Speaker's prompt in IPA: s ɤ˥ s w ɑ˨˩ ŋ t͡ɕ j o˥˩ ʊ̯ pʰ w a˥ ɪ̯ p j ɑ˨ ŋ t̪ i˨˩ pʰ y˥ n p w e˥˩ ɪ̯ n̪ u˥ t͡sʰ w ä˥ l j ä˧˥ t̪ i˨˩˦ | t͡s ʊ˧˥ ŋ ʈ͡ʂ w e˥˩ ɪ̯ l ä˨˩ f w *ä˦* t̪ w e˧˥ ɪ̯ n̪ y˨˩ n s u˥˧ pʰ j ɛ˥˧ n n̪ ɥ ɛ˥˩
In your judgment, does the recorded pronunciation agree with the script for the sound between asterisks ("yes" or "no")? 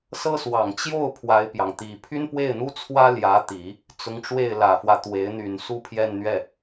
yes